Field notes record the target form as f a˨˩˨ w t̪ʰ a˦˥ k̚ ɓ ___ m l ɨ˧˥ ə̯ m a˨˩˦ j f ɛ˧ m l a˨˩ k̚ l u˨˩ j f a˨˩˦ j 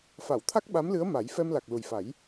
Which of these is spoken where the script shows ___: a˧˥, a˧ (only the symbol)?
a˧˥